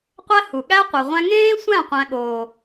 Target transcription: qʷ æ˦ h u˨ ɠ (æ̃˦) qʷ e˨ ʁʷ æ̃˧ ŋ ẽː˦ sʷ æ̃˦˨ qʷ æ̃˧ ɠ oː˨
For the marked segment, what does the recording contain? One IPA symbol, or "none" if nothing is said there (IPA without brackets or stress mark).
æ˦